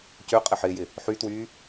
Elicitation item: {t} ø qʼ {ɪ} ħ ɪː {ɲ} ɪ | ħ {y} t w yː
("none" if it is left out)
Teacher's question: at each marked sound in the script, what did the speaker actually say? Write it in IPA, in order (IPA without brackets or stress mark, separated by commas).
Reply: c, ɪ, j, y